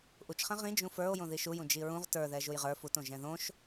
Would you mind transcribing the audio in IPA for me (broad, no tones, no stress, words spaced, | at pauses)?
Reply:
ʔut͡ʃχɛ̃ ʁĩ d͡ʒũfə˞o̯ jõðiʃujũ d͡ʒiɹũʁ tə˞ðɛ ʒujʁə˞ futõ ʒɛ̃ðõʃ